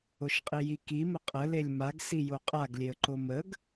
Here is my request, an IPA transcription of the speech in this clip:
oʃqʼijiki məqʼə lelʲmaɡ sijoqʼaɡ lʲeə̯ǃoməɡ

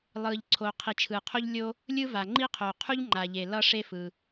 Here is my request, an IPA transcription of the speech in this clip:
lˠɯː˩ʎǀʰoː˩qʰi˩ t͡ʃʰɯː˩qʰo˥ʎlʲo˥ | lʲɯ˥va˩ŋ͡ǃi˥qʰoː˩ qʰu˥ʎŋ͡ǃaː˩ʎe˩ lʌ˥ʂeː˥fɯ˩

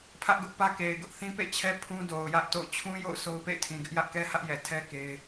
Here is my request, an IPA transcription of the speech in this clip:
pʰä˦ʔɡʊ˦ʔpä˦ ke˨ɪ̯ɡʊ˦ʔ θĩ˦pḛ˦˨t͡ɕʰɛ˦ pʰũ˦do˨ʊ̯jä˦ʔ to̰˦˨ʊ̯ t͡ɕʰũ˦jo̰˦˨ʊ̯ so˦ʊ̯pḛ˦˨ɪ̯tʰĩ˨ɡɪ˦ʔ jä˦ʔkɛ˦hä˦ʔjɛ˨ tʰɛ˦ ke˦ɪ̯

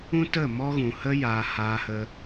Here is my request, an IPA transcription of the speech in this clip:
ũ˦tə˦˨ mɔ˦ɣũ˨ hə˦ jaː˨ haː˧hə˧

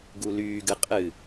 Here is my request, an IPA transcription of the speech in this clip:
ɡulyːɡɨ qʼɨ

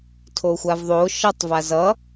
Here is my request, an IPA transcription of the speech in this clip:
tʰoxʷavðˤo ʃʌtˤ vazʌ

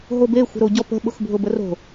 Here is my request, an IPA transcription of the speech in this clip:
ɦobe xʷə̤ɾoɟɔpə̤ ɓʊxbʱʊbəro̤

